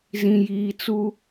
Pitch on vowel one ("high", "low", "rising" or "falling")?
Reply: low